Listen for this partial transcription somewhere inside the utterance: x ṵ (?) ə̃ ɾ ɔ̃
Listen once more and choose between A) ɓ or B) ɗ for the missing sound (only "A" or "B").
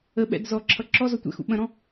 A